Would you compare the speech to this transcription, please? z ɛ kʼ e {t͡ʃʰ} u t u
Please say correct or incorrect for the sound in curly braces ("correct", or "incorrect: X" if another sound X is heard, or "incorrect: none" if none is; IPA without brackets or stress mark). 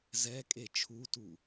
correct